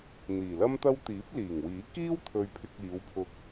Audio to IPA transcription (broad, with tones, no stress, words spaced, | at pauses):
n̪iː˨˩lɐ˥mt̪ɐ˥w t̪iː˨˥p̚liː˨˩ŋwiː˨˥ kiː˥wt̪ʰɵ˨ɥpʰɪ˨k̚ iː˨˧wpʰʊ˧k̚